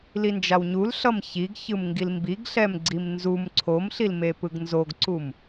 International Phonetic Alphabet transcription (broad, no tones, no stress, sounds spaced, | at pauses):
l i n d͡ʒ a w ɲ u l ɬ ʌ m ç i ɡ ç ɯ m ŋ ɡ i l m b i ɡ ɬ ɛ m ɡ͡ǀ i m n z u m ǀʰ o m ɬ i l m e p ɯ ɡ n z o ɡ ǀ u m